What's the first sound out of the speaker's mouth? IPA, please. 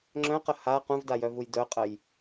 ŋ͡ǁ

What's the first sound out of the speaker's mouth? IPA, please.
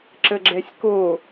ǁ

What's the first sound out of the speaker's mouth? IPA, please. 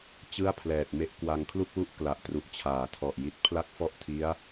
t͡ɕ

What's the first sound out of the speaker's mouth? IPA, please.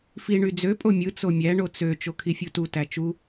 f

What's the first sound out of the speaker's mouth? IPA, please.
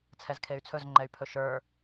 t͡sʰ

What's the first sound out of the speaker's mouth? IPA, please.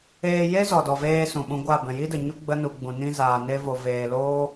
eː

